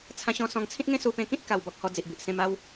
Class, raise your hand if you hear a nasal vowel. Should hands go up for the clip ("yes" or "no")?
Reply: yes